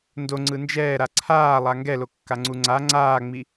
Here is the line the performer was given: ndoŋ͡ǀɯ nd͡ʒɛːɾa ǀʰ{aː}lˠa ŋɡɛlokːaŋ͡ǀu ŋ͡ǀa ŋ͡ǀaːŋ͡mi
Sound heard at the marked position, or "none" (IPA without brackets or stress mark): aː